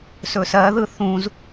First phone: s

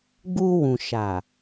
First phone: ɡ͡b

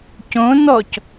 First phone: c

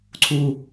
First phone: ǀʰ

